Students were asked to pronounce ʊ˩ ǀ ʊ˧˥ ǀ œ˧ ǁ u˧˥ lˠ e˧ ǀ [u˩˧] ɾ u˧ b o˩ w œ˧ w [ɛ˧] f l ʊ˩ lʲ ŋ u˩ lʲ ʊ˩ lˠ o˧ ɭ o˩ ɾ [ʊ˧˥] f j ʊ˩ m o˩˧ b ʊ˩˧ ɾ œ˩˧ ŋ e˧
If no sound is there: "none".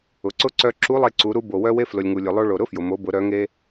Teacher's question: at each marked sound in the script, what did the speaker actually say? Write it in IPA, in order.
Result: u˩˧, e˧, ʊ˧˥

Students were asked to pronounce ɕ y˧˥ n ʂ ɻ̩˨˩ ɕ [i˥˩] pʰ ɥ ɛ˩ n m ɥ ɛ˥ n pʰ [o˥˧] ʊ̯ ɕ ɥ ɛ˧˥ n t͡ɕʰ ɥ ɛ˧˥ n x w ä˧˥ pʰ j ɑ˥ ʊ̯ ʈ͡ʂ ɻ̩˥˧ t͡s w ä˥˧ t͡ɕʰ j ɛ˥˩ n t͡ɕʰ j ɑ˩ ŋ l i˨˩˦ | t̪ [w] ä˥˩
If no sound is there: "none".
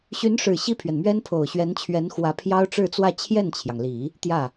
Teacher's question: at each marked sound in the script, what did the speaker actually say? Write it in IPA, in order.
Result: i˥˩, o˨˩, j

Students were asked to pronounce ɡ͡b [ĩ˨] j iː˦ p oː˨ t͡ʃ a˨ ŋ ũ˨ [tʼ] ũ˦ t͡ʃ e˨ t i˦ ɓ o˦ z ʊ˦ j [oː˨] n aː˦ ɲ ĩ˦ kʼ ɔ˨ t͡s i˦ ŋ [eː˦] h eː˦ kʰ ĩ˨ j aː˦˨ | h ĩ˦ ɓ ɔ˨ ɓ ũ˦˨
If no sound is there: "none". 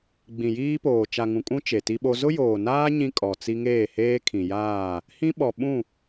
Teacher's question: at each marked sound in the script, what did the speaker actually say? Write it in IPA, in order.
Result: ĩ˨, kʼ, oː˨, eː˦˨

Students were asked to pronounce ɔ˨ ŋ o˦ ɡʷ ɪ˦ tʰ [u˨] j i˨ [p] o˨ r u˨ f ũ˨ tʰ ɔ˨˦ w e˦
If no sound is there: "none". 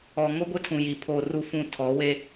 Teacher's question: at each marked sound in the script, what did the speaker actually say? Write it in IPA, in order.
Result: ũ˨, pʰ

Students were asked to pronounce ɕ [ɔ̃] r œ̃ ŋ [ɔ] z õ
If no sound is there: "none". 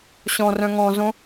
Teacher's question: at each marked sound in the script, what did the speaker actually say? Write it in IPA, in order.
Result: ɔ̃, ɔ̃

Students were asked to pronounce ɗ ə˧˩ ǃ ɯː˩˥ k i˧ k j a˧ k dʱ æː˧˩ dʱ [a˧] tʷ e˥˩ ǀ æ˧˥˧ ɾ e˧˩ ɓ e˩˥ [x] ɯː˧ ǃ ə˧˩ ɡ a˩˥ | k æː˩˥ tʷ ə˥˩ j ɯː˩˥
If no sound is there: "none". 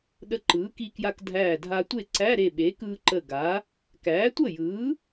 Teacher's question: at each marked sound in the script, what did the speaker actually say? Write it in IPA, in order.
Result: a˧, k

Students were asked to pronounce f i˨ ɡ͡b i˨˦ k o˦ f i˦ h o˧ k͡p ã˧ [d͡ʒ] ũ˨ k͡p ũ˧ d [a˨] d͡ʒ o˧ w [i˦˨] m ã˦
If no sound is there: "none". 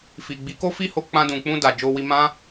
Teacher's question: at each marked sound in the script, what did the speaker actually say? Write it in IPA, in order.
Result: d, a˨, i˧

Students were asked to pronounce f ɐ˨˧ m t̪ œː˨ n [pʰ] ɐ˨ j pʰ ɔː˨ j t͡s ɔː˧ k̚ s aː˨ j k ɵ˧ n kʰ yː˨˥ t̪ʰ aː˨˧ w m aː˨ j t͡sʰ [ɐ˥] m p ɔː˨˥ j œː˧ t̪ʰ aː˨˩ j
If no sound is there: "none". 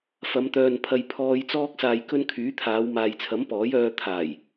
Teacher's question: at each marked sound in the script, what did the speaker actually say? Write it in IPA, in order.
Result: pʰ, ɐ˨˥

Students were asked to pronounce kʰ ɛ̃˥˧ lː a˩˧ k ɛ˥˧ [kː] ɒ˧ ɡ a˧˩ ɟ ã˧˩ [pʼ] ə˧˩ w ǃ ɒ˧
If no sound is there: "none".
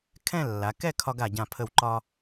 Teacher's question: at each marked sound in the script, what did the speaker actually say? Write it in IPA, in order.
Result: kʰ, pʰ

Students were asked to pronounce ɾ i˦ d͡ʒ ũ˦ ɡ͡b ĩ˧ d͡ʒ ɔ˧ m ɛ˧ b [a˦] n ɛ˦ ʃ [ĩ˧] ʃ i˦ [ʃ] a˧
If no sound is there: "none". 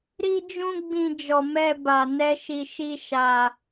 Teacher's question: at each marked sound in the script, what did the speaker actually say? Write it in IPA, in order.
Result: a˧, i˧, ʃ

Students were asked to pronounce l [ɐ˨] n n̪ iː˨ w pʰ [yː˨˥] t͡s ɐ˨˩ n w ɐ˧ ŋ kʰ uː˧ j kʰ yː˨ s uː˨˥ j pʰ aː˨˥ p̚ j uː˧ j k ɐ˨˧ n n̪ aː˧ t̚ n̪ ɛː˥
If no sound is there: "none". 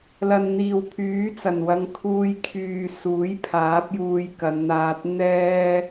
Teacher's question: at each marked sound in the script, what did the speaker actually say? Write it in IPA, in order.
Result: ɐ˨, yː˨˥

